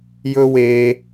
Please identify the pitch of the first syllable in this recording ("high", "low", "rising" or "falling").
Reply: high